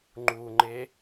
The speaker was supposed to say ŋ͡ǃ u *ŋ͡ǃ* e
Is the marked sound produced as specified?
yes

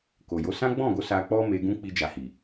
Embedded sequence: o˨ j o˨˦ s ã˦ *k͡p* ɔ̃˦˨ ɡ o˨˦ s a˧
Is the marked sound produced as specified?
no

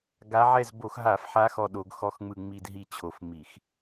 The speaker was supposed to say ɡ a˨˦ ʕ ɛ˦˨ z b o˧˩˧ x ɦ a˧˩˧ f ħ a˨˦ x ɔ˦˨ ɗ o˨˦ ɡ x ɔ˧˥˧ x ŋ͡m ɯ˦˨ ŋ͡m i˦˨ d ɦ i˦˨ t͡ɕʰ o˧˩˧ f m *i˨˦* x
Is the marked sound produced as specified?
no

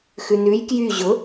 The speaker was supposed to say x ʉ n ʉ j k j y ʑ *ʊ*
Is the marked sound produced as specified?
yes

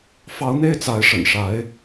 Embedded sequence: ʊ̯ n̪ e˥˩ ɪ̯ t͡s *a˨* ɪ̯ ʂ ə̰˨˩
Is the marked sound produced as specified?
no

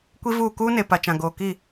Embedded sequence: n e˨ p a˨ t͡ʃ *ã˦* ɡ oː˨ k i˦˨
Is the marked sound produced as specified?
no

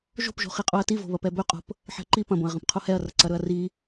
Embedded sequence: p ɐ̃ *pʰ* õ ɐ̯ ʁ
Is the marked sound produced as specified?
no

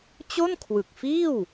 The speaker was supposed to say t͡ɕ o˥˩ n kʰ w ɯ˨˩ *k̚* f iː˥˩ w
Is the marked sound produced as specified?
yes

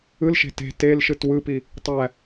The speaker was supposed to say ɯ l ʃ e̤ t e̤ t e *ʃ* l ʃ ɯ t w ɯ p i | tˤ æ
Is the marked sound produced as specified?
no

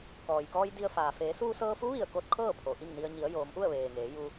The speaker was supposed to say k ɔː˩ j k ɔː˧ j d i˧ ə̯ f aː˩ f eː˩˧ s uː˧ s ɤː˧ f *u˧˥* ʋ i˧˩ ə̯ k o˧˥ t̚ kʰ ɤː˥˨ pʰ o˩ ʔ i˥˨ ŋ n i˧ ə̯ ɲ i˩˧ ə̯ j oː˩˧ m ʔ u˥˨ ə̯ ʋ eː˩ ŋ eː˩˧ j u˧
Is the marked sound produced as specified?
yes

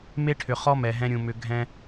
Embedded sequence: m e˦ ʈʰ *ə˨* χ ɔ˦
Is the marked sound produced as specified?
no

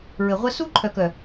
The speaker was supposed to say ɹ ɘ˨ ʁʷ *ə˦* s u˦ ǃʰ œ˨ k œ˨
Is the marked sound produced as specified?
yes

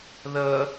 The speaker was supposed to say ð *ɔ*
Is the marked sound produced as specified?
no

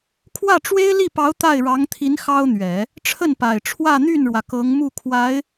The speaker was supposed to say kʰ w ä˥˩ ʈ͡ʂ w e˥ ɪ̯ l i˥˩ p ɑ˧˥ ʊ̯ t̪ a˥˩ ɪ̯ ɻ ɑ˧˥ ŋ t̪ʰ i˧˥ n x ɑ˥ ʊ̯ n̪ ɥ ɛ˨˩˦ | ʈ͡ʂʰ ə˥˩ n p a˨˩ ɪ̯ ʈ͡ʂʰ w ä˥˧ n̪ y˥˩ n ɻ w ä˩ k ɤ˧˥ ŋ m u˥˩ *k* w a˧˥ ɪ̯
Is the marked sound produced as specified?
no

